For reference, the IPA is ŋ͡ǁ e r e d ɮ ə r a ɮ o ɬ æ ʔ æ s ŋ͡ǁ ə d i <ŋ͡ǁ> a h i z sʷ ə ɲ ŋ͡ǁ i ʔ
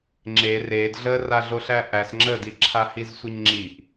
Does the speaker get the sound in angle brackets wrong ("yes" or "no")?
yes